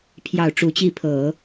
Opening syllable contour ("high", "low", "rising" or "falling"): low